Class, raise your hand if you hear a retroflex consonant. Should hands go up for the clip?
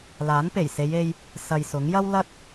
no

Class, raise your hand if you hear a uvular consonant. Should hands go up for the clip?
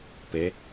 no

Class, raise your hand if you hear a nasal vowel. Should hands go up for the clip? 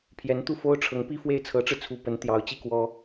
no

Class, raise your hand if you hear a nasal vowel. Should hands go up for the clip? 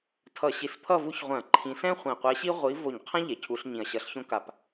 yes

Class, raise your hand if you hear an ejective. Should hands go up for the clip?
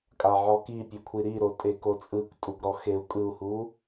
yes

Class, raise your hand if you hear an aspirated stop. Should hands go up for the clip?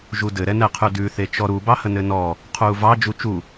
yes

